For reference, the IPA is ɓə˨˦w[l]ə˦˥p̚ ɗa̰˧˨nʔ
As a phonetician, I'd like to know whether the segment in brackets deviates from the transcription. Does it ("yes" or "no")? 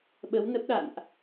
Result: yes